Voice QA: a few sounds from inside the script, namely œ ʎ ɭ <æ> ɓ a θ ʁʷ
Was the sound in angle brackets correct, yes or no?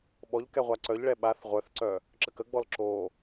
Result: no